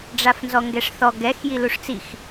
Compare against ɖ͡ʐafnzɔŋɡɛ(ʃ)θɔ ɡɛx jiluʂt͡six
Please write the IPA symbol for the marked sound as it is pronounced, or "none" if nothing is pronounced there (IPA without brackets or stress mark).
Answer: ʂ